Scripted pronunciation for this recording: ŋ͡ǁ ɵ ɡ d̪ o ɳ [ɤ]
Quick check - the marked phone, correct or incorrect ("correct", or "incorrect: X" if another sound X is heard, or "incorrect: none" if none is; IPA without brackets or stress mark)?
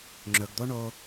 incorrect: o